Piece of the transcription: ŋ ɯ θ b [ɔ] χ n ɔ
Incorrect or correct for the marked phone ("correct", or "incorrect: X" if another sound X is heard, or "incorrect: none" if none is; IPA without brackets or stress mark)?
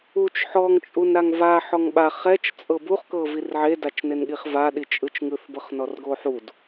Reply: incorrect: ɤ